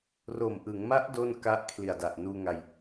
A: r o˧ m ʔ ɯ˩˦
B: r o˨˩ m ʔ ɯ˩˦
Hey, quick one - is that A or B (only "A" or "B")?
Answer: B